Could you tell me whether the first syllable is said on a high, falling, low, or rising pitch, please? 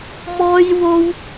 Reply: high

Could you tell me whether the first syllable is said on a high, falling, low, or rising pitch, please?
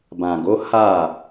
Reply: low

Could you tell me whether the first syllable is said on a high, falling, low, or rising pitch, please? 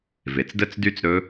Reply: low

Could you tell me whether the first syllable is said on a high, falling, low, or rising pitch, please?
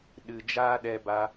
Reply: low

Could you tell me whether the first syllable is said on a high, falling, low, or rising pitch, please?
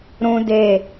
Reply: high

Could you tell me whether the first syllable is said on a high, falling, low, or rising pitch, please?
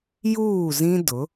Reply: falling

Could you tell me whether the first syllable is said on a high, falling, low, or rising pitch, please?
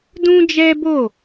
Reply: high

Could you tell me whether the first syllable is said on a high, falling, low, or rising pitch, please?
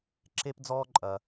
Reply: high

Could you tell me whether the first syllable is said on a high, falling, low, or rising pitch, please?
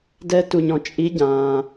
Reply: rising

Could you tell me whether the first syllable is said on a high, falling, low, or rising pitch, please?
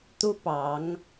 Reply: high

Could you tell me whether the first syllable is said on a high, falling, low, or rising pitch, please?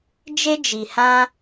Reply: high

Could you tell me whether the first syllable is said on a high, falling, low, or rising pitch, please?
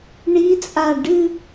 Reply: rising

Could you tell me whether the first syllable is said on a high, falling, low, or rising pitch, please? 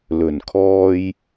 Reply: low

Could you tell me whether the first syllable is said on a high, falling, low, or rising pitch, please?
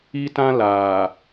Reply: high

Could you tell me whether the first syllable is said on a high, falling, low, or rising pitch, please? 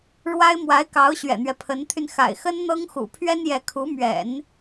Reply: high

